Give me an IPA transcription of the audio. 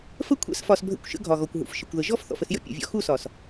f ə˦ kʷʰ ɛ̰˦ s f ɒ˧ s bʱ ə̰˦˨ kʷ ʃ ə̰˦ ɡʱ ɒ˨ ɣ ɔ˨ kʷ ɦ ṵ˨ f ʃ ə˨ kʷ ð ə˨ ʒ ɔ˦˨ f θ ɔ̰˨ f ə˧ s j ə̰˦ pʲ ṵ˨ vʲ ɔ̰˧ x u˦˨ s ɒ˨ s

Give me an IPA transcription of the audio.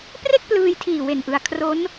p r e˥˩ k̚ p l ɯː˧ j tʰ iː˨˩ w e˨˩ n ʔ ɯ˧ a̯ kʰ r o˦˥ n

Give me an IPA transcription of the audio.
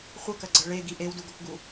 χʷ ɐ k ɐ ɡ͡ǀ ɐ ɭ e ɡ i ʔ e w d u ɡ o k ɡ u

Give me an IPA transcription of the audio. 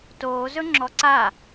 t oː z ɵ ŋ͡ǁ ɔ ǀ a

